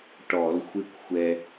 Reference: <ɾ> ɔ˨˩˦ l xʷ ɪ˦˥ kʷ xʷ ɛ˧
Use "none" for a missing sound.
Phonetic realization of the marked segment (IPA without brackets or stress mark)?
ʈ